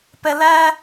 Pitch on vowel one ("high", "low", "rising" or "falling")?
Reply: high